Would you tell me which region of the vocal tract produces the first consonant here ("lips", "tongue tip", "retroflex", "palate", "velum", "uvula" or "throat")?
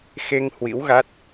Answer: velum